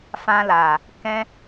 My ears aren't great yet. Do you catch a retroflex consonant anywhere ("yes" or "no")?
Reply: no